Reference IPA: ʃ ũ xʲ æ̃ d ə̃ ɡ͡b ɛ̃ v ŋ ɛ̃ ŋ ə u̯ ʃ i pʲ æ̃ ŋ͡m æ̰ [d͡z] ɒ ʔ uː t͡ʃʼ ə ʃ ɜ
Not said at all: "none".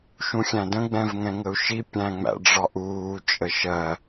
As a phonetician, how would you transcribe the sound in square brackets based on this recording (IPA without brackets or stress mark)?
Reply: ɖ͡ʐ